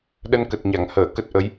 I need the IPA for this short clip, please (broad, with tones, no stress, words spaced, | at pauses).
ɗə˧nkə˨˩t̚ɲa˧˩ŋhəː˧˩ kə˦˥t̚ʔə˨˦j